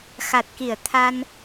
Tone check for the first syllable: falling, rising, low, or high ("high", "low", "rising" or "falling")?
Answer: low